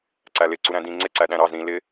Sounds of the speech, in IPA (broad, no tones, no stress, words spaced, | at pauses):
ǀælɪ ǀuɾæ̃dĩ ŋ͡ǀɪ ǀæɗæ̃ɾɑz ɾĩ lɪ